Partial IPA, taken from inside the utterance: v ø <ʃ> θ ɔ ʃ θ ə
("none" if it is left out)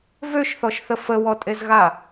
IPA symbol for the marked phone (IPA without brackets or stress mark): ʃ